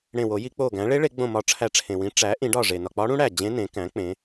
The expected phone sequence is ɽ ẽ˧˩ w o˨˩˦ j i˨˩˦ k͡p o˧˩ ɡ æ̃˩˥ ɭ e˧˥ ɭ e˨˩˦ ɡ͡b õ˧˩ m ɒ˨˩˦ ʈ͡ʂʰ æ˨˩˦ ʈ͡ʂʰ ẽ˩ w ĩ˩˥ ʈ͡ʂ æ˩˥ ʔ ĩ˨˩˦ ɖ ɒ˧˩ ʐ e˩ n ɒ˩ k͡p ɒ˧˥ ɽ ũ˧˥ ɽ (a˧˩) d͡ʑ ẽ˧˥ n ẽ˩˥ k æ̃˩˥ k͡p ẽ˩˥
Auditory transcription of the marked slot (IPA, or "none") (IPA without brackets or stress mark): æ˧˩